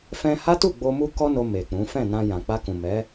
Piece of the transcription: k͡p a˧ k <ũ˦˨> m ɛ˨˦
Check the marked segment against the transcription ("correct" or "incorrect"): incorrect